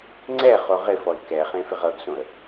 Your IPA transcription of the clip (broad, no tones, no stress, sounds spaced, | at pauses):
ŋ͡ǀ ɛ χ o ʁ ɪ f ɔ ɪ̯ k ɛ χ ẽ f ɪ ʁ ɤ ɡ s õ ə̯